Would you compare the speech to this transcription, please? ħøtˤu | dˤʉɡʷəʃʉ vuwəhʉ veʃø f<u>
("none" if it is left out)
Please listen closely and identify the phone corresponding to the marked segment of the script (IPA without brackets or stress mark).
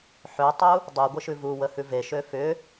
ʏ